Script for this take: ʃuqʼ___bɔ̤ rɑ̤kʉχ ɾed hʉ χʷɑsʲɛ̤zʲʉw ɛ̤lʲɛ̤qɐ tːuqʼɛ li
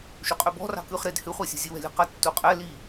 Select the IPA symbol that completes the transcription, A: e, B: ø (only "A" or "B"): B